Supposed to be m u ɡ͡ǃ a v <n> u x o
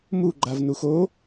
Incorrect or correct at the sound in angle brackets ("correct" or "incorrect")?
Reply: correct